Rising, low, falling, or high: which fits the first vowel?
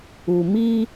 low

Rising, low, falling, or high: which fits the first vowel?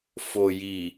low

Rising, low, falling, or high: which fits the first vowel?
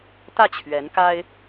falling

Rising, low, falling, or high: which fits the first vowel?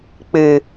low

